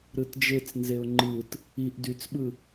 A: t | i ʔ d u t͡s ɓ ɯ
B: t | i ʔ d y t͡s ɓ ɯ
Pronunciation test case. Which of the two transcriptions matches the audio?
B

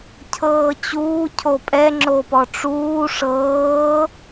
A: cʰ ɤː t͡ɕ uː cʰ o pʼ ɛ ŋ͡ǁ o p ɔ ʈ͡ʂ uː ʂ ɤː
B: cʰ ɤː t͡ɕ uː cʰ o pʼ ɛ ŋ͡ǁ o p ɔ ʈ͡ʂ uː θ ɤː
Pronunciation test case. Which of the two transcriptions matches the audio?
A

